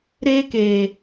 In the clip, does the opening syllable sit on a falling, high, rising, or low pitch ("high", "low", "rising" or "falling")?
high